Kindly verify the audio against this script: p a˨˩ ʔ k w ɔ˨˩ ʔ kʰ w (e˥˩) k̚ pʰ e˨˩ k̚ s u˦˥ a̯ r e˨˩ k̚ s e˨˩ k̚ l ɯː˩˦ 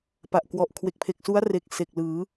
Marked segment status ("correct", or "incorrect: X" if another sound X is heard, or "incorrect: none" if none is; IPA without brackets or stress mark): incorrect: e˨˩